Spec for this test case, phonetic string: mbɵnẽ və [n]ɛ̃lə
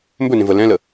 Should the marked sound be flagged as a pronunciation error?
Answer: yes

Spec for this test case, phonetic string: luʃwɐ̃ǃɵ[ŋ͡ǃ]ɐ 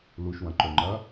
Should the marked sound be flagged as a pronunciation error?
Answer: no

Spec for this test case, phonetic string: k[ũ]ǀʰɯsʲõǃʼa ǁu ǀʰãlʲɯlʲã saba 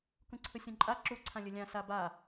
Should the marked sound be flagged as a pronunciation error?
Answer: no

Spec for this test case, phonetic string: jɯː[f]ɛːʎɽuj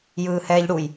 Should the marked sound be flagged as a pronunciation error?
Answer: yes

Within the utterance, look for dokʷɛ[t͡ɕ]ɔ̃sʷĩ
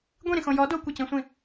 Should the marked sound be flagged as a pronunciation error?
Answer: no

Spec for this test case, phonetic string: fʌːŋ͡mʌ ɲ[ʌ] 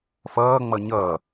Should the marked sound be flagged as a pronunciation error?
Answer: yes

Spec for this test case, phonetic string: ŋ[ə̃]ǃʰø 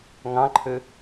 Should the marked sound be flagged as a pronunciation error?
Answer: yes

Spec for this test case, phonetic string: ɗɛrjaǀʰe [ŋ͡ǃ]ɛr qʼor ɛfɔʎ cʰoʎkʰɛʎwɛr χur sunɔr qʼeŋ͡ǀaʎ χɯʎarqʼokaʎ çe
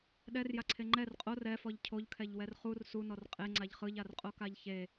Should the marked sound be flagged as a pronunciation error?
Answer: no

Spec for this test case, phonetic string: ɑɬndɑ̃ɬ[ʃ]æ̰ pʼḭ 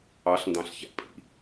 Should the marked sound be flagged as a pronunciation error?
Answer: yes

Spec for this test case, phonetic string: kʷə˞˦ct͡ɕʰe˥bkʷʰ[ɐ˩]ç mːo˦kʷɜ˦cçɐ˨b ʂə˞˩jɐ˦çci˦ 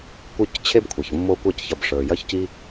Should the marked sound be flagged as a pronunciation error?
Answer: no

